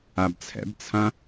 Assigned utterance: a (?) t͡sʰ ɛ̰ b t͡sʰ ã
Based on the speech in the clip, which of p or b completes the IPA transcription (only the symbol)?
b